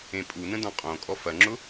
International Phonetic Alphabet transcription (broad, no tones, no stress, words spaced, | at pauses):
ẽpʼunə̃ dɔ̃qʼõkʼɔ fɐŋ͡ǁʊ